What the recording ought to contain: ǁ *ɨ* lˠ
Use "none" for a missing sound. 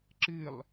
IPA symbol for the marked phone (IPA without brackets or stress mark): ɨ